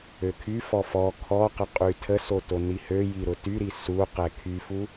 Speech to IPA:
økʰyfɔ fɔ kʰɔqə qʼytʰəso tonihøji ɾʊtyɾi su qɛkʰyfu

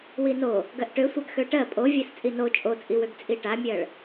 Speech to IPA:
wino | ɡɜʔʈøsʷaɡ xøʈɜ pʼo vʲɜst͡sʼino t͡ʃʼot͡sʼiwøɡ t͡sʼiʈamʲɜɭ

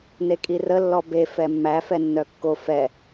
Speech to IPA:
nekʼirə lːɔbe fɛmːæ fɛnːœkːo fɛ

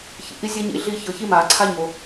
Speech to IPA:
çḭ˨ʔi˥zʲɛ˥ɲḭ˧˥ ɮi˦˨ çɤ˩˥çi˥ma˨˩˦ǀʰa˥ ɲo˨

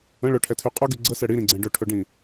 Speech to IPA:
ə̃ ɭɵʈʰɛtʰy qʼɵɡy ɡ͡ǀəsɛ ɽiɾĩɡ͡ǀɛ̃ ɖɵʈʰɵɖĩ

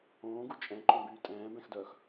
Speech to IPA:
õːɡu t͡ʃʼɛ̃ǃõbyː tʼɛ̃ːbɛ̃xdœːx

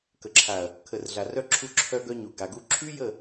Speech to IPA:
kə˨ǁʰa˨ɐ̯ | kʰə˨rɮa˨ rœ˦ ǁʰu˦ǁʰœ˦ɡœ˦ɲu˨ ɡa˨ɡu˦ ǁʰy˦jə˦˨

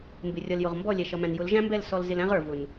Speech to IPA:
mbɪ˨rʲʌ˨ljʊ˨ʁ mbɔ˦˨lʲɛ˨ʃʌ˨mæ̃˨n jʊ˨˦lʒæ̃˦mbɛ˦˨l sɔ˧lzɪ˧læ̃˦ʁə˞˨ vʊ˨n

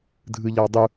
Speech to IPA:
dʱɯʎɑdˤu

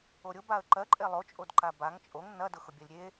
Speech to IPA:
oɾʲʊ baə̯ǃɜǃʼe lˠot͡ʃʼodǃa baŋ t͡ʃʼoŋ nɐdʊ xʊbʲɜlʲɾʲe

